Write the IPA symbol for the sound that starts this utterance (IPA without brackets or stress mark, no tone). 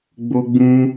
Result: ɡ͡b